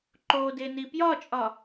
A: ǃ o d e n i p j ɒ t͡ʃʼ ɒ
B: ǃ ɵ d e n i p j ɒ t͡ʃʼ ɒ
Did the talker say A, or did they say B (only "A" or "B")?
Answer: A